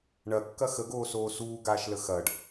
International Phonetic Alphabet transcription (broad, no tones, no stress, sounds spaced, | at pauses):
ɳ ɐ kː ɐ x ə ɡ oː s oː s uː ɡ aː ʃ l ə x ɐː ɖ